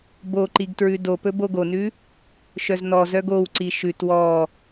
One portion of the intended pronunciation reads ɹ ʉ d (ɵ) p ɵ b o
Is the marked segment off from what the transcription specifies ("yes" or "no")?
yes